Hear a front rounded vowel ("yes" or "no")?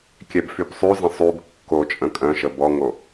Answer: yes